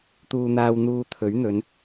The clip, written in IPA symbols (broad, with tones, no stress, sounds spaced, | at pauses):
t̪ uː˧ n̪ aː˧ w n̪ uː˧ t̪ʰ ɵ˨˥ ɥ n̪ ɵ˨˧ n